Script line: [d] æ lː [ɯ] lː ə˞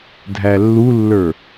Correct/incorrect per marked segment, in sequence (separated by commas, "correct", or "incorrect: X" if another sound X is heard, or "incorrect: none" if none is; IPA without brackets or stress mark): incorrect: dʱ, incorrect: u